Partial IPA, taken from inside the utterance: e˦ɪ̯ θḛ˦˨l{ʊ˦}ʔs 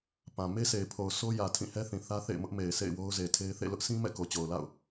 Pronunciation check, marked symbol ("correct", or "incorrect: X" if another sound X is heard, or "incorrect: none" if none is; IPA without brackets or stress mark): correct